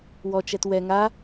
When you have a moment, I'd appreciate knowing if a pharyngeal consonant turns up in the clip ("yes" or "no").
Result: no